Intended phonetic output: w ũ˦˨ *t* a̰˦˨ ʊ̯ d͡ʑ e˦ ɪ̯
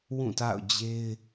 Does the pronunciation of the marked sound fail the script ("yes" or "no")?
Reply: no